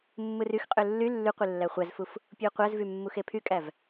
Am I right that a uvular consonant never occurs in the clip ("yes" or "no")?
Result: no